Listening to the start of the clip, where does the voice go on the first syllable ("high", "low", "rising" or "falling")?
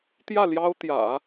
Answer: falling